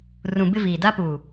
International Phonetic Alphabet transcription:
rũ˨bɪ˦ viː˨da˦pu˨

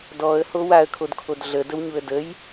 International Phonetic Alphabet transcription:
dɔə̯ho waə̯kʰodkʰod ɮədəwɲuə̯ dəj

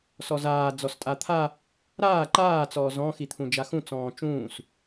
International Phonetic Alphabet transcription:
sɔzaː d͡zɔstʼat̪ʰa | ɾaː ǃaː t͡sɔːzɔ̃ xit̪ʰũd͡ʒaxũ t͡sɔ̃ːt͡ʃũːs

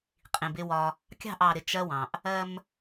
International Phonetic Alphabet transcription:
qʼĩ˨bɪ˦wɒ˦ | kʲɑ̤˦˨ʔɑ˨ɾɪ˨ t͡ʃɜ˦wɑ̃˨ʔ | ɜ˦m

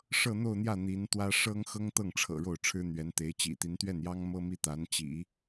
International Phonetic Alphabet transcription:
ʂɤ˥˧n̪o˥˧ʊ̯n̪jä˥˩ n̪i˧˥nt̪wä˥ ʂɤ˥ŋ xɤ˥ŋt̪ɤ˥˩ŋʈ͡ʂʰɤ̰˨˩ ɻo˥˩ʊ̯ʈ͡ʂʰɻ̩˥n̪ɥɛ˧˥nt̪e˧˥ɪ̯ t͡ɕḭ˨˩t̪i˧˥n t̪ɥɛ˥˩njɑ˥ŋmɤ˥ mi˥t̪a˧˥n t͡ɕḭ˨˩˦

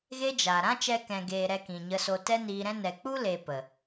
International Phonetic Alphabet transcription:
ɣe˦d͡ʒa˨ ɾã˦t͡ʃɛ˧kɛ̃˨ɡeː˨ ɾɛ˧kĩ˨ɲə˧so˧ tɛ˦niː˧ɾɛ̃˦ nɛ˨k͡pu˦ le˧pə˨

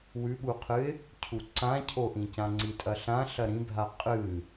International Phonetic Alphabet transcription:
wʉɓuqʰɨɪ̯ | cʰuǀãcʰoʔĩ cãŋ͡ǀitʼɐɬã ɬɐɾĩbʱa qʼɨ

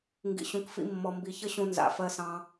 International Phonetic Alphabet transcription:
ŋɡḭ˨ɕũ˨kfḭ˧ mːɔ˨mbi˨çə˦ɕũ˧ nza̰˨ fɜ˧sɑ̃˧

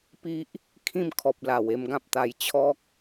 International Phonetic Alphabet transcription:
pi˦ʔ | kʰĩ˥˧mkʰɔ˨p̚la˨˩w e˧mɡã˦p̚t̪a˧j t͡ɕʰɔ˦k̚

